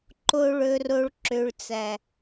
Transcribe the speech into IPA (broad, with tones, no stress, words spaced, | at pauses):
ǃo˨ɭɵ˨ro˨ɭ ǁø˨ɭt͡sæ˨